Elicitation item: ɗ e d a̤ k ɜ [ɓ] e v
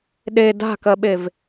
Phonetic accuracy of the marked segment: correct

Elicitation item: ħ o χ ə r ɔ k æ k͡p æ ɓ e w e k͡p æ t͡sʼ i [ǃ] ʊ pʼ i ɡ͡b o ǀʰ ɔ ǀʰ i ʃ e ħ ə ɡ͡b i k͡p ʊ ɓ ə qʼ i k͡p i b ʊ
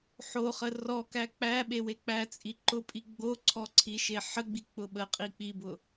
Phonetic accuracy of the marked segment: correct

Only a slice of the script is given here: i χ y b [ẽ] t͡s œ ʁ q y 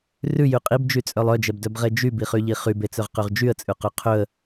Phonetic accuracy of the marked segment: incorrect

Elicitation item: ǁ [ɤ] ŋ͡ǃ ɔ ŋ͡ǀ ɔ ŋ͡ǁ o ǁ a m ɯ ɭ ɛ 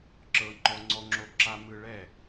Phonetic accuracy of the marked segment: correct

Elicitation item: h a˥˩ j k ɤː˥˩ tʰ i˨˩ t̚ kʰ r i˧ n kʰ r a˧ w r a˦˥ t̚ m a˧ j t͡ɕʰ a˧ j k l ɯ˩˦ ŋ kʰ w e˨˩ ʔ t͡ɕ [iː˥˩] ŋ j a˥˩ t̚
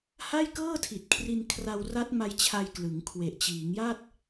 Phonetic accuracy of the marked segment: incorrect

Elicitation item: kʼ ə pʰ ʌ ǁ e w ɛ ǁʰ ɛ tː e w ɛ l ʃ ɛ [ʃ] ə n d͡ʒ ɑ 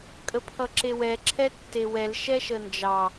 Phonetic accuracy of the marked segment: correct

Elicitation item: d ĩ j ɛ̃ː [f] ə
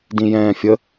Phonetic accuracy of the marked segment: incorrect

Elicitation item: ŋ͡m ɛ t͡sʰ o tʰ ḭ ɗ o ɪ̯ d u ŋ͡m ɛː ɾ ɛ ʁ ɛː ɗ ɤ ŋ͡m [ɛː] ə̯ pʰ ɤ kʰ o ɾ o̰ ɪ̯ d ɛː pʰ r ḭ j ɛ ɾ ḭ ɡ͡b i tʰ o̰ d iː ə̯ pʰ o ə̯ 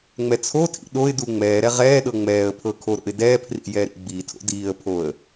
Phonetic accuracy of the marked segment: correct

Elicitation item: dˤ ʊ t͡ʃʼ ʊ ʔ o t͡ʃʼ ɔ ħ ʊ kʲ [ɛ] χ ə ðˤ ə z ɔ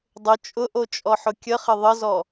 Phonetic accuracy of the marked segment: incorrect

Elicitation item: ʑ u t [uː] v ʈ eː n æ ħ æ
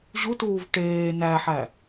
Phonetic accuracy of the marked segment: correct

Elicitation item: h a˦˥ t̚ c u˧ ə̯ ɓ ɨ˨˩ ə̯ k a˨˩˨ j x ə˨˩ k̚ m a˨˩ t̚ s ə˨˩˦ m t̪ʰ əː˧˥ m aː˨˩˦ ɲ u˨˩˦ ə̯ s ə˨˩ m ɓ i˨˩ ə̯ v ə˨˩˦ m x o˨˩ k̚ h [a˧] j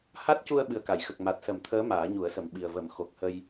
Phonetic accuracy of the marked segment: incorrect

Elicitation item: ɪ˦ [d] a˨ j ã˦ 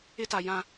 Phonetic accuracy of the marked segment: incorrect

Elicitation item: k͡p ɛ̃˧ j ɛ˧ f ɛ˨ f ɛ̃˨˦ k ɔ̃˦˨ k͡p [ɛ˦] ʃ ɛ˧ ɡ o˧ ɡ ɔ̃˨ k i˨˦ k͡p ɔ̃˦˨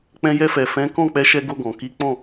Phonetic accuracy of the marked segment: incorrect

